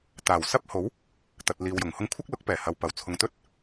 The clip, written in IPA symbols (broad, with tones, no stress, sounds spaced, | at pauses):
t̪ aː˨˩ w s ɐ˥ p̚ h o˨˥ w | t̪ ɐ˨ t̚ l iː˨ w j ʊ˨˩ ŋ h ʊ˧ ŋ kʷʰ ɐ˥ k̚ l ʊ˨˥ k̚ p ɛː˨˩ h ɐ˨ w p ɐ˨˩ w t͡sʰ ʊ˨˧ ŋ t̪ ɵ˥ t̚